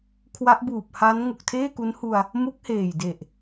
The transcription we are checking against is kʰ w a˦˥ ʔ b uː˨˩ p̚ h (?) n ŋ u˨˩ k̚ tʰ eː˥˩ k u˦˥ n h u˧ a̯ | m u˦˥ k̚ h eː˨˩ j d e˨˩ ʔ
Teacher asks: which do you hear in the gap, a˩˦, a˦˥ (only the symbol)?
a˦˥